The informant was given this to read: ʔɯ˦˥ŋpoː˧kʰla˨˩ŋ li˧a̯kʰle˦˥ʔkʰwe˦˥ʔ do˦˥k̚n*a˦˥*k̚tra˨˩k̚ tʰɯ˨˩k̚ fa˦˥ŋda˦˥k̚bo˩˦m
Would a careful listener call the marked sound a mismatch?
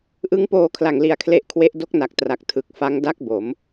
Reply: yes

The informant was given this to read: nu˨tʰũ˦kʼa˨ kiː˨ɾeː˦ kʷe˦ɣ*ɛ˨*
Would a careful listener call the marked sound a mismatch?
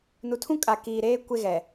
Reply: no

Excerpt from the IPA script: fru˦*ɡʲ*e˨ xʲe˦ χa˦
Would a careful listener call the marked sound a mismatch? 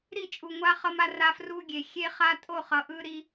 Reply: no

